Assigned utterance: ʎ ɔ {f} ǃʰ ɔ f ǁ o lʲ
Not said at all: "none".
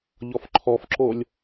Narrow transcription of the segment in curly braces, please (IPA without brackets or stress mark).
f